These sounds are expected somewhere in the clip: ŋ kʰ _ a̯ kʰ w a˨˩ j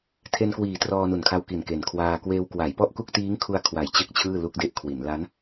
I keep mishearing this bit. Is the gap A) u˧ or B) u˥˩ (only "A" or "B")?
A